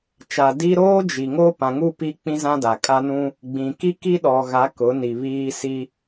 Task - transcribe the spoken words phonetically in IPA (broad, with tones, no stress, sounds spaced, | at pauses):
t͡ʃ a˨ d i˦ ɾ oː˦ d͡ʒ i˨ ŋ oː˦ p ã˨ ŋ u˦˨ p i˦ k͡p ĩ˦ z ã˦ d a˨ kʼ a˦ n ũ˦ | ɡ͡b ĩ˨ k i˦ k i˦ ɗ ɔ˨ ɣ a˨˦ k ʊ˨˦ n i˨ β iː˦ s i˦